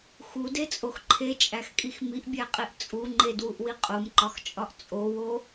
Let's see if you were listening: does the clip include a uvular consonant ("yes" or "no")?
yes